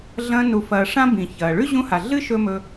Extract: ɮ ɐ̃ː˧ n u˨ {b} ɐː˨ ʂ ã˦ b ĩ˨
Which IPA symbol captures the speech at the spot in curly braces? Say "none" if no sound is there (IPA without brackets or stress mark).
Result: f